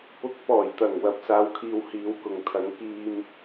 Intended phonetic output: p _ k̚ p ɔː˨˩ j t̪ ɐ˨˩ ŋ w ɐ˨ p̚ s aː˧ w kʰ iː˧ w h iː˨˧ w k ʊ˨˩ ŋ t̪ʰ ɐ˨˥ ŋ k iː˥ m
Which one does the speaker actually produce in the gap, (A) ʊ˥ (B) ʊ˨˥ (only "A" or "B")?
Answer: B